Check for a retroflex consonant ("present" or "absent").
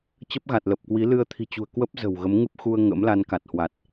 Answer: absent